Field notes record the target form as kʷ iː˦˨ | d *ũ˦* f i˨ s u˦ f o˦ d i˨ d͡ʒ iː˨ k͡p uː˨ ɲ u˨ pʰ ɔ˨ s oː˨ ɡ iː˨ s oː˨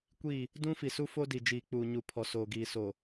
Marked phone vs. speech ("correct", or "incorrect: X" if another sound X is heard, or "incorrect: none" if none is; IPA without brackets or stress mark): correct